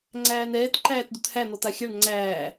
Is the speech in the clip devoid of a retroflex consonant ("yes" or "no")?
no